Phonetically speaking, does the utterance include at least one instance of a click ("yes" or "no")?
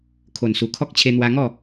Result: no